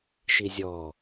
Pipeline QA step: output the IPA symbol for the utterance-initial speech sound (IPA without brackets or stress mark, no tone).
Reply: ʃ